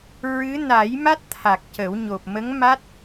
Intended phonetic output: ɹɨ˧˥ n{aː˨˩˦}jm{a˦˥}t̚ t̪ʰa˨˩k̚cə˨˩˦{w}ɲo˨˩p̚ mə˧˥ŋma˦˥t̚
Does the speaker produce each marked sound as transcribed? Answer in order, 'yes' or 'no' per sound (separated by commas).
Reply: no, yes, yes